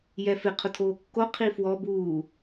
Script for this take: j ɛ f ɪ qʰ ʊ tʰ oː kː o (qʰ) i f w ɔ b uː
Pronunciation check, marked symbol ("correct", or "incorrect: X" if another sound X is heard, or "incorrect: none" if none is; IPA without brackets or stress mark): correct